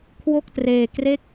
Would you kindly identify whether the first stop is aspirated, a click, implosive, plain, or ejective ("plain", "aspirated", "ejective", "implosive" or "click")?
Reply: aspirated